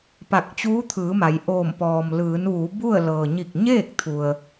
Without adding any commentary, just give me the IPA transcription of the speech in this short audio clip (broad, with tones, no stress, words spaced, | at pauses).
pa˧˩k̚t͡ɕuː˧˥t̪ʰɯː˩˧ ma˩˧jʔoː˧˩m pɔː˩mlɯː˩˧nʋuː˩˧ bu˥˨ə̯ lɤː˩ɲi˧˩k̚ɲeː˥˨k̚ t̪ʰu˩ə̯